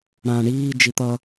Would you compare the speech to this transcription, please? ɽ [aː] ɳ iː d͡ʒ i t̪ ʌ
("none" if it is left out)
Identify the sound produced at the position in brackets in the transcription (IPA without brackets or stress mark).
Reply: ãː